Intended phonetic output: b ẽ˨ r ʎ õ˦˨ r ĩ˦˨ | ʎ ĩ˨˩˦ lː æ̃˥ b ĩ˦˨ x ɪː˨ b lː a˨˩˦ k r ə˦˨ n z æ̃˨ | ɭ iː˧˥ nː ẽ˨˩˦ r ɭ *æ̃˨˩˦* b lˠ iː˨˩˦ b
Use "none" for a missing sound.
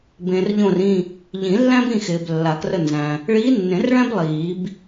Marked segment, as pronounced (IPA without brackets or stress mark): æ̃˥